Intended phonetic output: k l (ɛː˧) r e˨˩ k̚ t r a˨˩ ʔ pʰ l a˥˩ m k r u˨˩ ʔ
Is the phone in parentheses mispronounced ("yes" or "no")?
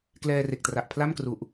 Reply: no